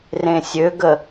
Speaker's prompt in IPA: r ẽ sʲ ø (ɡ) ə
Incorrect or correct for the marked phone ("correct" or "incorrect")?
correct